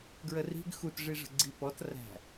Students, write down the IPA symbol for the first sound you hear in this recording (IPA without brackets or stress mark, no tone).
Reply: ɡ